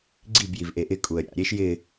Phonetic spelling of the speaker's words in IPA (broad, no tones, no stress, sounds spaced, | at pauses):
ɡ͡ǀ i b j i v ʔ e ʔ ɪ kʼ u ə̯ ɾʲ a̰ ɾʲ e ʃ j ɪ